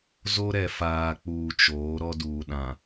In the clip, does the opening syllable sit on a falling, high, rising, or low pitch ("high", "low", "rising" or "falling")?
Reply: high